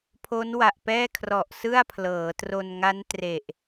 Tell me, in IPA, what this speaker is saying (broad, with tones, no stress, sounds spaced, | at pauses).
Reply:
pʰ o˦˥ n w a˨˩ ʔ p ɛː˥˩ kʰ r ɔ˨˩ ʔ s ɯ˥˩ a̯ pʰ l ɤː˩˦ t r o˧ n ŋ a˦˥ n t r e˨˩ ʔ